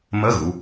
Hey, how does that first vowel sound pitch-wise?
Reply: rising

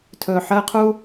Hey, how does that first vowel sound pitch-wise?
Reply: low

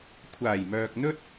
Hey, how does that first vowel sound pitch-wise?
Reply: low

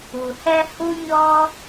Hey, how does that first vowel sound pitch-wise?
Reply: low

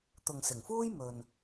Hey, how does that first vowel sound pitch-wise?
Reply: low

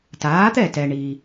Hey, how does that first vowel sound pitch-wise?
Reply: rising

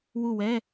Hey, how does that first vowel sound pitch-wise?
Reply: falling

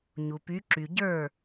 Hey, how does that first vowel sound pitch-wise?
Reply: low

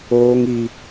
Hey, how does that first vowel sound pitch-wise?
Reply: high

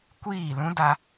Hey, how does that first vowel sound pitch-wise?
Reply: falling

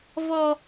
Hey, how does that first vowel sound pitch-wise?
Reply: high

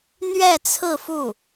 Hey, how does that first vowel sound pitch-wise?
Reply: falling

